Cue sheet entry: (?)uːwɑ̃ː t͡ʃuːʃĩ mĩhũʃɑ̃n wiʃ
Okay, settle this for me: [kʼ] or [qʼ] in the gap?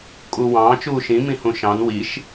kʼ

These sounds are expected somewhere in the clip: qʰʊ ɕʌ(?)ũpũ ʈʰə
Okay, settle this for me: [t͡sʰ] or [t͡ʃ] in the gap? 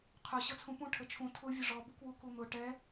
t͡sʰ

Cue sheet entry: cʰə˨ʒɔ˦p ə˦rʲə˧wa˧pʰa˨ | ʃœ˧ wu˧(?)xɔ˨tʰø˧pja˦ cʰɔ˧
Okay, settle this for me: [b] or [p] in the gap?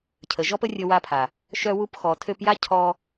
p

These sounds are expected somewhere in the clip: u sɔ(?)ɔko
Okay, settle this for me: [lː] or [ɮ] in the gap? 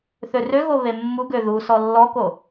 lː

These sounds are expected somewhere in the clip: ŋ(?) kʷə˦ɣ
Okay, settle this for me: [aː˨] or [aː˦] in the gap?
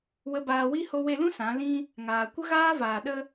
aː˨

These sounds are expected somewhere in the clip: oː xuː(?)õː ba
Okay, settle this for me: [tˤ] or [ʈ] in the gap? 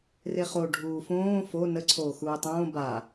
tˤ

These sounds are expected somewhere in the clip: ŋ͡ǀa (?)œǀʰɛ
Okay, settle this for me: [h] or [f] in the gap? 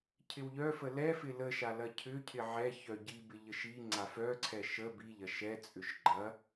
f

